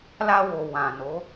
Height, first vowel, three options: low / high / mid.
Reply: low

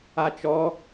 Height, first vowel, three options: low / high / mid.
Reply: low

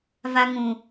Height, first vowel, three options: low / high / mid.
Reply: low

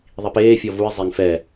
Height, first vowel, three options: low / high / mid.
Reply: high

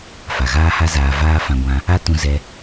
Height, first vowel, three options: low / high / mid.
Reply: low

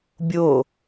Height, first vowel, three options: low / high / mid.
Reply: mid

